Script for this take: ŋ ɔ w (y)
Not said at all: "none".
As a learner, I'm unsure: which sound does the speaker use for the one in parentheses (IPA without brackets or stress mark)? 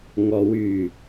y